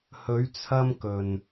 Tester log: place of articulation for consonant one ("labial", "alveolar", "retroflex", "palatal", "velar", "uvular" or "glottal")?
glottal